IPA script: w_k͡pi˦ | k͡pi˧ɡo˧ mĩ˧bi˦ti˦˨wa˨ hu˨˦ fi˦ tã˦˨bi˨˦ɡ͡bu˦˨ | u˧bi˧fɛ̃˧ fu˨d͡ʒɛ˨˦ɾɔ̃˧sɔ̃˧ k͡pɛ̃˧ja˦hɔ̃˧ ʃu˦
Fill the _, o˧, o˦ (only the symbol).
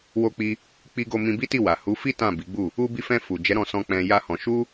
o˦